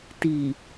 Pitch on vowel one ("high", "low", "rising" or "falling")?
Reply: low